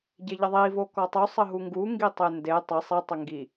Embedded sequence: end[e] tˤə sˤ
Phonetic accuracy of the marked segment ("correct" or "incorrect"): correct